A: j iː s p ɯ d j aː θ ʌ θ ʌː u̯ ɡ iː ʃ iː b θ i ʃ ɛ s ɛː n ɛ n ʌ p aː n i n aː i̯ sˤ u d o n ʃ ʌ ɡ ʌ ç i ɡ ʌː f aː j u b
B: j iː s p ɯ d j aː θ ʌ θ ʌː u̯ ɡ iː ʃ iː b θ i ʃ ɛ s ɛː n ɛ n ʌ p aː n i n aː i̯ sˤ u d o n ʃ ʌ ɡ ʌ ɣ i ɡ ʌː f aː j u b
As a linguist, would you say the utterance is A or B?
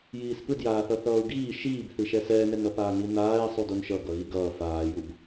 B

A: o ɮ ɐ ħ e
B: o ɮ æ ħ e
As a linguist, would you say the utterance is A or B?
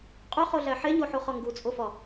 B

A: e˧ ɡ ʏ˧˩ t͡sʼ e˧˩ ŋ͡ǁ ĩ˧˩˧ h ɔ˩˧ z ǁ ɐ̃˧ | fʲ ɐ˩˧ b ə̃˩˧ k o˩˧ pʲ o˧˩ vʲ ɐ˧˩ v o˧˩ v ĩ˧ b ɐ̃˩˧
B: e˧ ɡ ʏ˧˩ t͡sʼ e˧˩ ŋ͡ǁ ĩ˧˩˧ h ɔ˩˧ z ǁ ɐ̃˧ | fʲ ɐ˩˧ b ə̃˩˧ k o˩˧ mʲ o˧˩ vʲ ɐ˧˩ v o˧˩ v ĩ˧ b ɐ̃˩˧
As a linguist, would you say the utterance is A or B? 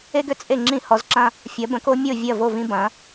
B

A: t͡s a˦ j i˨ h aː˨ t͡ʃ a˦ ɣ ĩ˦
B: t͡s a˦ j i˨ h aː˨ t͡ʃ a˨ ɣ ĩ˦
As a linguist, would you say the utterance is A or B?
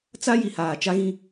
A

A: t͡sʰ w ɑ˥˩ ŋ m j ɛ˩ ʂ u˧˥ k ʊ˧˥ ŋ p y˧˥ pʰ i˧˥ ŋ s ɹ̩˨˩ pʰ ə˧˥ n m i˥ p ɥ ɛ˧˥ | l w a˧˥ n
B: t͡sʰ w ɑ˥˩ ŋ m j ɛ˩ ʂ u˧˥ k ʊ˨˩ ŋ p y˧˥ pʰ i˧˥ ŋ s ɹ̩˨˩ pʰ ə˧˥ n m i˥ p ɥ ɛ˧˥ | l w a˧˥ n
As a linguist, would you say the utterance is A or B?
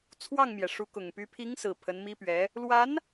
B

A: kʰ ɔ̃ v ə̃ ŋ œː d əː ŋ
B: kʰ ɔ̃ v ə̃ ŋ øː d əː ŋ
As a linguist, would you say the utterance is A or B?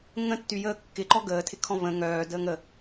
A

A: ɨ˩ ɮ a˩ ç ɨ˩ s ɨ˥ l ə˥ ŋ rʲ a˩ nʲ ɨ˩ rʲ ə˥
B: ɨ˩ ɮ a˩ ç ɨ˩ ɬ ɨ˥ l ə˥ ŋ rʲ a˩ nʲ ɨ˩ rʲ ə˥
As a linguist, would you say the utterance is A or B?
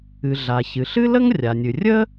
B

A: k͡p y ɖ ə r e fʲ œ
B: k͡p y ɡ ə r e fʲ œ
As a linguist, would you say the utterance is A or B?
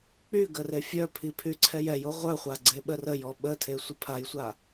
B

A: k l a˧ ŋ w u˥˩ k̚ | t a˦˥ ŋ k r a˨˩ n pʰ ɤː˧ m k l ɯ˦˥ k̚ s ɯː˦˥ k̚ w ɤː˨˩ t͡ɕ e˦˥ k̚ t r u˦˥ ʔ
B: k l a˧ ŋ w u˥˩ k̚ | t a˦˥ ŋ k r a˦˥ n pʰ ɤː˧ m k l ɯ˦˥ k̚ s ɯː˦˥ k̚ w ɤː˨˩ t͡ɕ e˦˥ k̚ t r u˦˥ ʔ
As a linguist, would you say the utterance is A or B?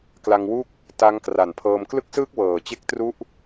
A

